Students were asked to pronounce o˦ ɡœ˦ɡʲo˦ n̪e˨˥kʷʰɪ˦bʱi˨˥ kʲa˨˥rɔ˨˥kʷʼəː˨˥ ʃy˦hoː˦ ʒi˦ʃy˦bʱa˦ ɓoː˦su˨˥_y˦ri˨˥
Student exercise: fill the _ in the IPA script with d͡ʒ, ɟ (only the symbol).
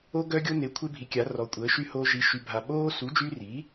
d͡ʒ